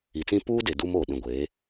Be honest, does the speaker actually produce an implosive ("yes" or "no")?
yes